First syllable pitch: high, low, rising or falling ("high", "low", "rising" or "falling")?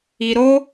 low